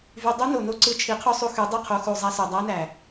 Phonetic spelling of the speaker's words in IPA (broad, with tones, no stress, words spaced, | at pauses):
vy˧ dˤu˦no˨no˦ ǀɯ˧t͡ʃʰi˨˦qʰo˦sˤu˧ xy˨˦dˤø˦˨qʰo˨˦ xu˨zˤæ˧sø˨ dˤæ˦næ˨